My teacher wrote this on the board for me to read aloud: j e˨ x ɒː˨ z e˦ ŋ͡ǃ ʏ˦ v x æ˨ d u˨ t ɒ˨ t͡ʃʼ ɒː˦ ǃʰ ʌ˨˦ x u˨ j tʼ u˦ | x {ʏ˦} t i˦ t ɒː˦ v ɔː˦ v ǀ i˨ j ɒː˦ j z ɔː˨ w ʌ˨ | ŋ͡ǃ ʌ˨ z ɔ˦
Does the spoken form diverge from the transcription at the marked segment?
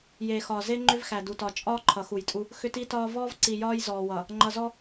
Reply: no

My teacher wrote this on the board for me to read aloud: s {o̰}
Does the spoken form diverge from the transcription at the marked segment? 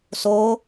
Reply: yes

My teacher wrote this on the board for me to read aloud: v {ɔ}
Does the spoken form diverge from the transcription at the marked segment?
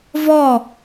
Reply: no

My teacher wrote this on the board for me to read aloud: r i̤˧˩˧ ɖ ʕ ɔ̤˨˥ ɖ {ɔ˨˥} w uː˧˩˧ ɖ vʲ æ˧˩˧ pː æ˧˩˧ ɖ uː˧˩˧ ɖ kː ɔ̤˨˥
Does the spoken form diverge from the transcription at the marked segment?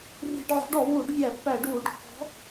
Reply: yes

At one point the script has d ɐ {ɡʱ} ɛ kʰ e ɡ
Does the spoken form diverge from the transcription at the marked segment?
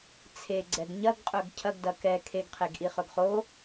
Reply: yes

